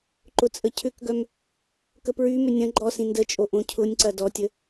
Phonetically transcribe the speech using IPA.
ǃʊt͡sʼəcʰʏkɡœm | kəpɹymʏ nʲɐ̃ ɡ͡ǃɔsĩ ndət͡ʃʼo ʔõcʰʊnʲǀɐ dɔtʲə

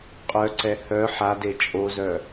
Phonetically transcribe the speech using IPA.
qʼœǀɛ hœ ħade t͡ʃʼozœ

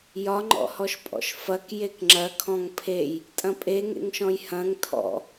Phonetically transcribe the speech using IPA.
jɒŋ͡ǃɔ̰hɔʃpʼɔ̰ʃ fɐk jekŋ͡ǁɐ kʰɔ̃ŋpʰej | tʼɐ̃pʼeŋḛŋʃɔ̃j hɐ̃ŋ tʰɔ̰

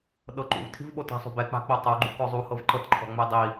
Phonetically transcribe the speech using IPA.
ɗɤǃṵvtʰi̤vɓo ta̤sˤo̤bɛ k͡pa̤k͡potˤoɡ͡ǃṵ kɔzˤu hɤvǃɤtǃʰɔ̤ŋ͡me dˤi

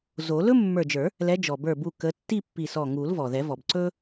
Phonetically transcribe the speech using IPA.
zo˨˩˦ lɵ˥mːə˞˧˩d͡ʒə˞˨˩˦ | lɛ˨˦d͡ʒɔ˩bə˞˧˩ bu˧˩kə˨˦ tːi˥˧pːi˧˩sɔ˧˩ ŋu˨˩˦lvɔ˩ðɛ˨˩˦vɔ˩b ǀɵ˥

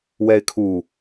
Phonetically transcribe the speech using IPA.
wɛɪ̯kʰu

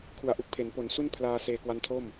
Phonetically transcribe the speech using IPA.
kʰu˩˦a̯ʔu˨˩k̚pʰe˩˦n po˩˦n su˥˩n pʰlaː˧seː˧ kwa˦˥ntʰo˥˩m

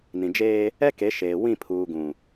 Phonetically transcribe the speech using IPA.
nĩ˨d͡ʒeː˦ | ɛ˦ke˨˦ʃeː˨ wĩ˦˨pʰuː˨ɡũ˨

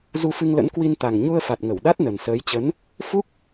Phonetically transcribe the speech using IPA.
zu˧fɨ˧ŋlə̰˧˥n kwi˧n t̪a˨˩ŋɲu˧ə̯fa˨˩t̚ ŋə˧˩wɗa˦˥t̚ nə˨˩nsəː˨˦jt͡ɕə˨˦n | fu˦˥k̚

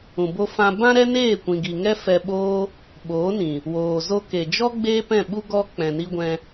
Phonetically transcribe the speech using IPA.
ũ˨bo˧ fã˧ bã˦ɾɛ˦neː˦˨ kʷĩ˨ɡi˨ŋɛ˧ fɛ˧ɓoː˦ | ɓoː˨˦nĩ˨ | woː˨zo˧ke˨d͡ʒɔ˦ ɡ͡beː˦pɛ̃˦˨ɓu˦ ɡɔ˧ k͡pɛ̃˨ni˧ɡʷɛ̃˧

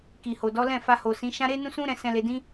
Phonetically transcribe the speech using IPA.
ki˨ho˨dɔ˨˦lɛ̃˦˨ fa˧ho˨sĩ˨˦ ʃã˦ ɾe˦nũ˦sũ˦ ɾɛ̃˧sɛ̃˧ le˧dĩ˦

